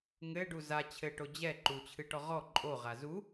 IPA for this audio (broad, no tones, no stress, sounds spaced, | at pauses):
ŋ ɘ ɖ u z a t͡ɕʰ ɘ ʈ o d͡ʑ ɛ ǃ u t͡ɕʰ ɨ ʈ ɔ ʁ ɔ ǃʼ o ʁ a z u